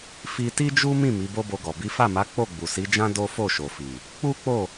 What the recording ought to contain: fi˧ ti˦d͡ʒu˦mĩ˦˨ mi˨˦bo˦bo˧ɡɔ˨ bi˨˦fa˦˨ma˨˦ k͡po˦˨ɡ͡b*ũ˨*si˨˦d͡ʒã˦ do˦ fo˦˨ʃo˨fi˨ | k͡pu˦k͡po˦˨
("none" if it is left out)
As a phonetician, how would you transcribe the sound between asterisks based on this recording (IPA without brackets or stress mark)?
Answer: u˨